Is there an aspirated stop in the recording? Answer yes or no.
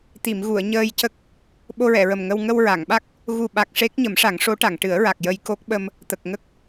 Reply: no